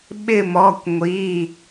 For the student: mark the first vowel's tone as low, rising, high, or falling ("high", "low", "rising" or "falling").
falling